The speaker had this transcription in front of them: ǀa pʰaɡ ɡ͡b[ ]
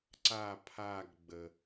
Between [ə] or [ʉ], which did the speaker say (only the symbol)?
ə